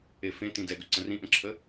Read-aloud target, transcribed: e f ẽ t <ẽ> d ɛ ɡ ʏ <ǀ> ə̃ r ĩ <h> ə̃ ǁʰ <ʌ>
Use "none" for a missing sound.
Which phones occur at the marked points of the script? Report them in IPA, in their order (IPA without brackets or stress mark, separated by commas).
ĩ, ǀ, ʔ, ə